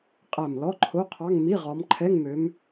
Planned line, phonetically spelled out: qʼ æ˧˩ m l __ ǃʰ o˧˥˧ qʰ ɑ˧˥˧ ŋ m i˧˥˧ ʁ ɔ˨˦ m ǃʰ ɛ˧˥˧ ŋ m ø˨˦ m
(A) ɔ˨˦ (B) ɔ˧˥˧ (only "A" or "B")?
B